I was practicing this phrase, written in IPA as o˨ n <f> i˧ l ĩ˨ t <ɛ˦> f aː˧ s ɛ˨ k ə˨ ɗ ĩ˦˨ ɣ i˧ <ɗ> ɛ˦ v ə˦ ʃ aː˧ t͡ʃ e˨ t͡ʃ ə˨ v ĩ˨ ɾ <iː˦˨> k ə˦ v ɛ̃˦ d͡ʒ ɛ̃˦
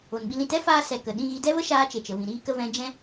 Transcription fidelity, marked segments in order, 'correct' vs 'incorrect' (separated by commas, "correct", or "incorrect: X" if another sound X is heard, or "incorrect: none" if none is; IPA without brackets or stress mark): incorrect: ɓ, correct, incorrect: d, incorrect: iː˦